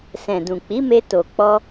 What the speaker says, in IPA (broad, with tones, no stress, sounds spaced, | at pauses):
s ɛ̃˨ d ũ˨ k͡p i˨˦ m e˧ t o˨ k͡p ɔ˧